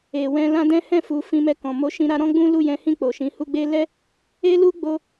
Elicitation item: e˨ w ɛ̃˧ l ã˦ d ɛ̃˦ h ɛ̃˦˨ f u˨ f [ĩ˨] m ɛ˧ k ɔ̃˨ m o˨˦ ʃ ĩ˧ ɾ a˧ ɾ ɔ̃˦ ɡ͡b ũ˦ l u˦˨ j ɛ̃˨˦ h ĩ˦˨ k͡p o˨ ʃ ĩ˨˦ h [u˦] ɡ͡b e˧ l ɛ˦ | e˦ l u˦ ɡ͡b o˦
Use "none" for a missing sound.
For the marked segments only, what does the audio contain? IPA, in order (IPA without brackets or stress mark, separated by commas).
ĩ˧, u˦